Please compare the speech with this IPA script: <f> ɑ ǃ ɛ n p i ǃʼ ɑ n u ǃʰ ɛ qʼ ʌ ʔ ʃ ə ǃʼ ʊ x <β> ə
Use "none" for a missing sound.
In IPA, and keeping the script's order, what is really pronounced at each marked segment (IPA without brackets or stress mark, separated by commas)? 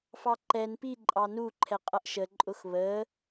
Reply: f, β